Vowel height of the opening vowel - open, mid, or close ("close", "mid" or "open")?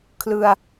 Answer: close